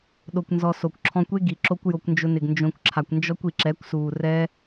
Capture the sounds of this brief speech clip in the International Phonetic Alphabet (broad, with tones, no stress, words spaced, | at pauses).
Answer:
ɗo˧kʷnzɔ˧ so˨kʷǁʰɔ̃˧kʷe˦ ɡi˨ǁo˦kʷ jo˧kʷnd͡ʒʊ˧nɪ˨ɡ nd͡ʒõ˧kʷǁʰa˨kʷnd͡ʒɔ˦kʷ i˨ǁɛ˨˦kʷsuː˨rɛː˦